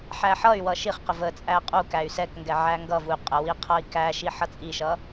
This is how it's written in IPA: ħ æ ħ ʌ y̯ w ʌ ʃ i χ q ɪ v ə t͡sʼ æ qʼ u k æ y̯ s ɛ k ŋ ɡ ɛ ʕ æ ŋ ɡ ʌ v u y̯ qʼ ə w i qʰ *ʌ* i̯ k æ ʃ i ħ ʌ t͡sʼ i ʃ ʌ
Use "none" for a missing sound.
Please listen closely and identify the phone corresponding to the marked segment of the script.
ʌ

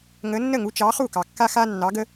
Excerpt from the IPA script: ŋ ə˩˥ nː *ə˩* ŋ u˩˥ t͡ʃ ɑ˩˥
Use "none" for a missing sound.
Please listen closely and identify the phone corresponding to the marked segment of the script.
ə˥˩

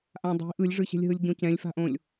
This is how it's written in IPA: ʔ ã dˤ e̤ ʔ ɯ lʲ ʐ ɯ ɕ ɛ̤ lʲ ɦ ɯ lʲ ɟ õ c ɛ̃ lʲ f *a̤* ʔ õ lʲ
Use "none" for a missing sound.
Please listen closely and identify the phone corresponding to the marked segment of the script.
a̤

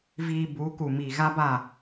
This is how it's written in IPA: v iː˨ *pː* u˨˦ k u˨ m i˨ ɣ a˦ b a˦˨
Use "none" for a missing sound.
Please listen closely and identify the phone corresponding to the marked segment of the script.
b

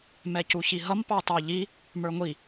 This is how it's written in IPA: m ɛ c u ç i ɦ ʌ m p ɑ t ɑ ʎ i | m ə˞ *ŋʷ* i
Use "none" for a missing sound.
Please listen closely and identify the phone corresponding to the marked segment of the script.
ŋʷ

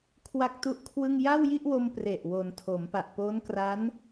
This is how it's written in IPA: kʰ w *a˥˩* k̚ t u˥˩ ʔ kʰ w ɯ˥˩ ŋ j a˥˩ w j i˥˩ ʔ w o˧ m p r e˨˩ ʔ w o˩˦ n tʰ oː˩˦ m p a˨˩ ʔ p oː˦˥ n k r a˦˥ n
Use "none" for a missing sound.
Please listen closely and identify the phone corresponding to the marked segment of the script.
a˥˩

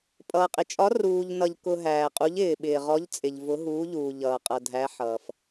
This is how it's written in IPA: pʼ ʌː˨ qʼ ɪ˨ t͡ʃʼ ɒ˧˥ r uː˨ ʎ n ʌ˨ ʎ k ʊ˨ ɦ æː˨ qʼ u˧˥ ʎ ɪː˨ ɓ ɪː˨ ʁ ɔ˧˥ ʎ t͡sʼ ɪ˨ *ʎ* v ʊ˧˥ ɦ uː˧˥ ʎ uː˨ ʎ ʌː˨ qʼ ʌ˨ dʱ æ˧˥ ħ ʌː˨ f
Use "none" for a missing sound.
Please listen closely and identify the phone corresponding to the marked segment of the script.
ʎ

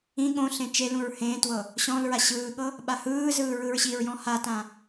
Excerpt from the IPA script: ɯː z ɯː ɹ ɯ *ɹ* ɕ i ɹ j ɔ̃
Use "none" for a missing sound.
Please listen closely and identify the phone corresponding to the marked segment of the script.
ɹ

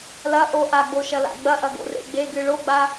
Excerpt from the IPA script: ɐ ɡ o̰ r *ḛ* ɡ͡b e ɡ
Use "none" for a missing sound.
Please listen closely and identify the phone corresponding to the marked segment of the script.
ḛ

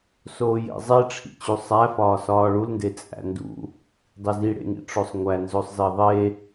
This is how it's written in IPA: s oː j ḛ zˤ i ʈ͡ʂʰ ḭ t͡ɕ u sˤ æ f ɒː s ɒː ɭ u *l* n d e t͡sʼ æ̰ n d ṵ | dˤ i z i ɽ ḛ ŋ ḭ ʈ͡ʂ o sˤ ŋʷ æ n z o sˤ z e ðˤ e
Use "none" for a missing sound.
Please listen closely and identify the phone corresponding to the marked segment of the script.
l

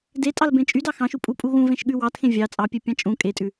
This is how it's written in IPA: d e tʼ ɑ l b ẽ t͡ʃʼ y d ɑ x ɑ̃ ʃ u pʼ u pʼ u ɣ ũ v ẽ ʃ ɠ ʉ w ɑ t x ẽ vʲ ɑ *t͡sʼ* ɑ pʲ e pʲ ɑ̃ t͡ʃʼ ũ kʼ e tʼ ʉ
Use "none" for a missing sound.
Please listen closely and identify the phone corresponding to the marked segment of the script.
t͡sʼ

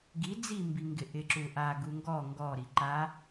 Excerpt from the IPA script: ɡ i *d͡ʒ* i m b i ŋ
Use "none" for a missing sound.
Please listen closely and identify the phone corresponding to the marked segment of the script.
d͡z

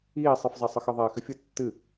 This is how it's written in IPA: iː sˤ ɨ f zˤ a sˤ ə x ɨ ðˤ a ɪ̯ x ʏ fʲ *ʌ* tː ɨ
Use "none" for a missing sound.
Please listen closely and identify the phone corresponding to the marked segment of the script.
ə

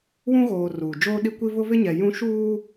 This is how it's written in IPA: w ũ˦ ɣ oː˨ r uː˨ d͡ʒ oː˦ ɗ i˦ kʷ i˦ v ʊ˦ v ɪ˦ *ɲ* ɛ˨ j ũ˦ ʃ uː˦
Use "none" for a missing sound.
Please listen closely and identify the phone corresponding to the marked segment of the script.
ɲ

